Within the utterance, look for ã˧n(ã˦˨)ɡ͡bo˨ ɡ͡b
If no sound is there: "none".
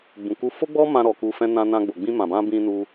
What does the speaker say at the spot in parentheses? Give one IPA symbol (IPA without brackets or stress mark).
ã˧